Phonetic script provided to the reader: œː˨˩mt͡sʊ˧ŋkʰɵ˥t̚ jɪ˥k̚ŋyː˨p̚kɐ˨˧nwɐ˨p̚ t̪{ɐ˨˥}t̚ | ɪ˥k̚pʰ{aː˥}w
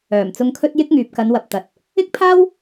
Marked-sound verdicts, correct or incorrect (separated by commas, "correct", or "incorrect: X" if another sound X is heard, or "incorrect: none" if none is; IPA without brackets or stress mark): incorrect: ɐ˨, correct